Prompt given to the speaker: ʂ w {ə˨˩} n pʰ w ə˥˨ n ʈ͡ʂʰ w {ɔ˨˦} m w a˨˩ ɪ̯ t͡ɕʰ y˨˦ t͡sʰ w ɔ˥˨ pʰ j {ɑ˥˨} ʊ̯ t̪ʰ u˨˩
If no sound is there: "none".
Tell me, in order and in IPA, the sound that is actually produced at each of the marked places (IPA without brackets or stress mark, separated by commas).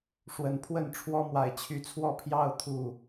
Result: ə˨˩, ɔ˦, ɑ˥˨